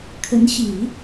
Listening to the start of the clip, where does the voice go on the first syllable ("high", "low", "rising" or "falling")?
rising